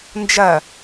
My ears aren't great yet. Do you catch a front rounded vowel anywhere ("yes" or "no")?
no